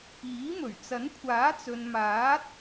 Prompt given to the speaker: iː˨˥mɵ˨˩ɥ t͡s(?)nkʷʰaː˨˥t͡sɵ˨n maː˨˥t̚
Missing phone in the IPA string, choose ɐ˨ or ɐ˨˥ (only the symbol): ɐ˨˥